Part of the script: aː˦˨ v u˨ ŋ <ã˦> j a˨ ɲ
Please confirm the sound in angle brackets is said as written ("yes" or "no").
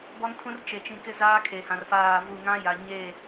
yes